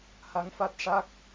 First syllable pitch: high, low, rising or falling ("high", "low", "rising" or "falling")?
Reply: rising